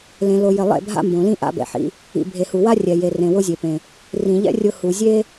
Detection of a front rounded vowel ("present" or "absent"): absent